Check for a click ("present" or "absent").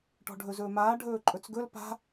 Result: present